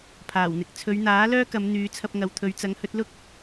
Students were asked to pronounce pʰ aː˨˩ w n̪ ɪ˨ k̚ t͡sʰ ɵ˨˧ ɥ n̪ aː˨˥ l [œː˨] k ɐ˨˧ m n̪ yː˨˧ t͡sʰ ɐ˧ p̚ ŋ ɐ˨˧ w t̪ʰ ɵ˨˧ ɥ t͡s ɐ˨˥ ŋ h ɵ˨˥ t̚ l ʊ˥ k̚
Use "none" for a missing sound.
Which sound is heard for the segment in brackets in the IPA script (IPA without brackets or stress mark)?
œː˥